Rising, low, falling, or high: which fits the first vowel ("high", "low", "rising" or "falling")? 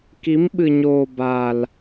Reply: rising